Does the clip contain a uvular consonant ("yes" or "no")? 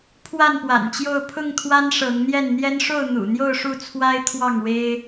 no